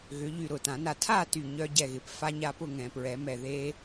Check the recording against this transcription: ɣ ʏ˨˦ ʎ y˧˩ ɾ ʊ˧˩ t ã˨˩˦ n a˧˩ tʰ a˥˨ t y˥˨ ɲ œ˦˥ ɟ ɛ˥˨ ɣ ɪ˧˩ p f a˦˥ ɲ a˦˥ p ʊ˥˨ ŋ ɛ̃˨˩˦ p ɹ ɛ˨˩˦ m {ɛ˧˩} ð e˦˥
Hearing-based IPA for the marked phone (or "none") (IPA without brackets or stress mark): ɛ˧˩